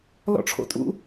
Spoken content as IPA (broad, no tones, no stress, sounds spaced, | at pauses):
l ɔ̰ ʈ͡ʂʰ o̰ tʼ ṵ